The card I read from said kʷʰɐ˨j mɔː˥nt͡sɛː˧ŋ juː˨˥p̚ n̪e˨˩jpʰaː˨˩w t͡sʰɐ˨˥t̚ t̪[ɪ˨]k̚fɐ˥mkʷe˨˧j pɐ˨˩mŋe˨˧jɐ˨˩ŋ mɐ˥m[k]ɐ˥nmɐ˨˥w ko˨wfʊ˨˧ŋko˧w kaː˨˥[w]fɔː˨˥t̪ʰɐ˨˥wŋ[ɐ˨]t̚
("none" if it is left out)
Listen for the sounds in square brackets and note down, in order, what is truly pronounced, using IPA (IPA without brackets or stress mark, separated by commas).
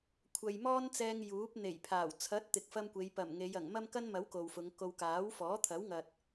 ɪ˨, k, w, ɐ˨